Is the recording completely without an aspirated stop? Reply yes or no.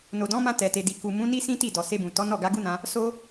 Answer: yes